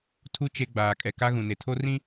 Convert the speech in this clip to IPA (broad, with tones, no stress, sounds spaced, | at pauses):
tʰ u˦ t͡ʃ e˦ ɡ͡b aː˨ kʼ ɛ˨ k a˦ ɣ ũ˨ n e˨ tʰ o˦ r ĩ˦